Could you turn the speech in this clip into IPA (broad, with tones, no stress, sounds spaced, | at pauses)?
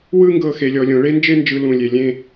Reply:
w ɯ˥ ŋ ɡ ɤ˧ x e˩˧ lʲ ɔ˩˧ lʲ õ˩˧ ɭ e˥ n d͡ʒ e˥ n d͡ʒ ɯ˧ l ũ˧˩ lʲ e˧˩ lʲ ẽ˥˧